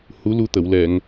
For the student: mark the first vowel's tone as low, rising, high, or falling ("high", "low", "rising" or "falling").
rising